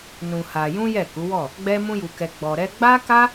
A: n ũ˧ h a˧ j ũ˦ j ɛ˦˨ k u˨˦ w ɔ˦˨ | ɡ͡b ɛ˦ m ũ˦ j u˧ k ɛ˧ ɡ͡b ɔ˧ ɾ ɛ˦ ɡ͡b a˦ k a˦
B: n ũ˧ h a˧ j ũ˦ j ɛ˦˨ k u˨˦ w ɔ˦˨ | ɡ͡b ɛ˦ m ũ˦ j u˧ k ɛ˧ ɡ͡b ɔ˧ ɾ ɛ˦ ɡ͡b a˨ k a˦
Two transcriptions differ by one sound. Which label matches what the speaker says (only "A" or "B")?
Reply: A